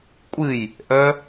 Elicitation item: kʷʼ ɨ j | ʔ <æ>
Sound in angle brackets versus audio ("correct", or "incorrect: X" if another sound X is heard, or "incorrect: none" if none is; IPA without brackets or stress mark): incorrect: œ